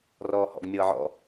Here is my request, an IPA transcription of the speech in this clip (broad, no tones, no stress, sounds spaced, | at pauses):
r ɔː h ɔ̰ ɡ mʲ ɤː ʕ ɔ̰